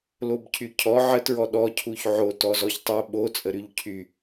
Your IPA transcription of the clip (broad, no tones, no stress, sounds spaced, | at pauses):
l o b cʰ y cʰ ɔ ʕ ə t ɹ ɔ ɗ ɔ cʰ u ç ʕ o t ɔ z ɔ ç tˤ o ɓ o t͡sʼ ə ɾ y ʎ cʰ y